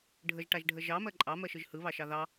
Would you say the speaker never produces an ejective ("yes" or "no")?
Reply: no